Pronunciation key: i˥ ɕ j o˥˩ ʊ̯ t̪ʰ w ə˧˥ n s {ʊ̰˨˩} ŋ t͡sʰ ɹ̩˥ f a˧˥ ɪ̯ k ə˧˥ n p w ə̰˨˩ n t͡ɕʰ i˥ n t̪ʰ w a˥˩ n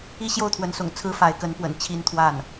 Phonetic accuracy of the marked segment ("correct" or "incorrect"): correct